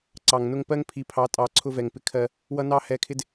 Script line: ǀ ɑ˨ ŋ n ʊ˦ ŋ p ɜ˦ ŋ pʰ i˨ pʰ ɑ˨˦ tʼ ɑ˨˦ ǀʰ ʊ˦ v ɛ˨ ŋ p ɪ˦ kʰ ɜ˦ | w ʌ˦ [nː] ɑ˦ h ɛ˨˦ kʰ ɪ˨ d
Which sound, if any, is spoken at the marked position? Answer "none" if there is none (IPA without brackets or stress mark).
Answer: n